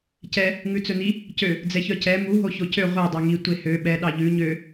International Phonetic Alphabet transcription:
c ɛ | ŋ ʉ t͡s ɵ n i | c ø | d͡z ɛ ç œ c ɛ m u ɦ o ç o c ø ʁʷ ɛ dˤ ø ŋ i tʷ e h ø ɓ ɛ ɗ ɑ ʎ ʉ ɲ ø

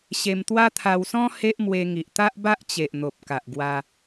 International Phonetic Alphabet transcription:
ɕ e˧ m t̪ w a˦ t̪ʰ a˧ w s ɔ̃˦ h e˦ ʔ m w e˧ ŋ i˨ ʔ t̪ a˦ ʔ b a˦ ʔ t͡ɕ e˨ ʔ n̪ o˨ p̚ k a˨ ʔ ɡ w a˧

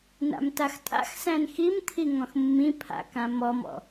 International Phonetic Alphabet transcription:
n a̰ m t a x tʼ a̰ x s æ̃ n x i m t̪ʰ i ŋ ɔ̃ x mː ĩ pʰ a̰ k ã m ɔ m ɔ̰

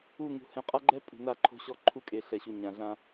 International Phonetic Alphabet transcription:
u˦˨ ŋ ṳ˨ h ɛ̃˨ qʼ a˦ ɡ͡ǃ ɛ˦ pʼ ṳ˨ n a˦˨ ǃʰ o̤˦ ɕ ɔ˦ ǃʰ u˦ kʼ e˨ ɬ ɛ˨ ɕ u˨ ɲ ã˨ ɮ ã˦

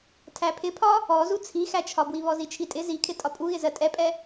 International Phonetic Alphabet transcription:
tʰ æ pʰ ɪ pʰ ɒ | ɔ z u t͡sʰ i x æ t͡ʃʰ ɒ b w i β ɔ z i t͡ʃʰ i tʼ ɪ z i kʰ ɪ tʼ ɒ pʼ u ɣ ɪ z ɜ tʼ ɛ pʼ ɛ

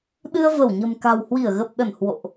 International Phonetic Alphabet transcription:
ɗ ɨ˧ ə̯ v ə˧˩ w ɲ ə̤˨˩ m k a̤˨˩ w h w i˧˩ ə̯ ɣ ə˨˩ p̚ ɗ ə˧˩ n h w o̰˧˨ ʔ

